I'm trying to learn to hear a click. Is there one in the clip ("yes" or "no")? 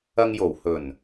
no